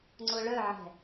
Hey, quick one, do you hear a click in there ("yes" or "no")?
yes